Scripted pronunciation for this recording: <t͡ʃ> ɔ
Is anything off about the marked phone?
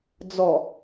yes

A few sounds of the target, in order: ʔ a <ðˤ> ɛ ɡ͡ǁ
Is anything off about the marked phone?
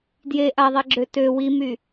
no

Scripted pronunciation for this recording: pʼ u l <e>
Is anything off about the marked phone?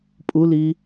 yes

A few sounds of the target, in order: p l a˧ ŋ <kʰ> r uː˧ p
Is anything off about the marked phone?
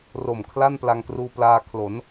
yes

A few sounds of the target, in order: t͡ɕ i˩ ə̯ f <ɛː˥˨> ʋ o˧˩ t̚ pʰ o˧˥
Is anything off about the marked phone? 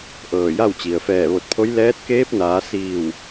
yes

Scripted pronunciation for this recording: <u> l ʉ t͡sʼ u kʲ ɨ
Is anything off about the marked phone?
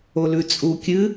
yes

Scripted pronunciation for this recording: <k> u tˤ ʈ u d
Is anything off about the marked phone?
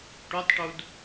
yes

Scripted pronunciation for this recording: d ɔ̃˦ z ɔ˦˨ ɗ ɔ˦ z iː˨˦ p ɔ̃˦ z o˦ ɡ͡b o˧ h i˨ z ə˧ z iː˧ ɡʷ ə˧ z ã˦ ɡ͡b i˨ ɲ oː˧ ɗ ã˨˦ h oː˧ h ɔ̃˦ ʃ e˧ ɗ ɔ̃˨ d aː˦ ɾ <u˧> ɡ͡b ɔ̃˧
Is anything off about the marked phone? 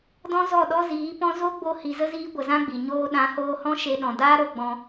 yes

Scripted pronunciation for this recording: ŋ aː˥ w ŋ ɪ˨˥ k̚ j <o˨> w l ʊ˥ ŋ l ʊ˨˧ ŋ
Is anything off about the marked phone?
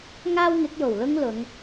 yes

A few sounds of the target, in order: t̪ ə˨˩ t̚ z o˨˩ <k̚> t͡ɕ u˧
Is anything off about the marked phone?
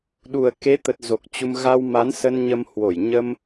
no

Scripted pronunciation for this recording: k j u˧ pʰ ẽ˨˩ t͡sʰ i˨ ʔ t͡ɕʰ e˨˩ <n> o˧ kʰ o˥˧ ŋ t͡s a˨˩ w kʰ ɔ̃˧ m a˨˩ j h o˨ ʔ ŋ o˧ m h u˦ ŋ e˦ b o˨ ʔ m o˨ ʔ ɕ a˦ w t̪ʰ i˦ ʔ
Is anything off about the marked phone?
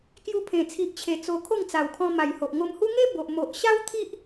yes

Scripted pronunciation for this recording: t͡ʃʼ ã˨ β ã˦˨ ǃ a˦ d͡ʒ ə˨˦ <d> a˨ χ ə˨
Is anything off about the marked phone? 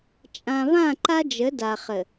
no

